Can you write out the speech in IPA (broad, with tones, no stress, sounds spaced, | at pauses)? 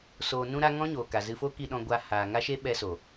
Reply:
s oː˨ n ũ˧ ɾ a˧ ŋ ɔ̃˦ ɲ oː˨ k a˨ z ɨ˧ f o˦ k i˧ ɗ ɔ̃˧ ɡʷ a˧ h aː˨ ŋ a˦ ʃ e˦ ɓ ɛ˧ s o˨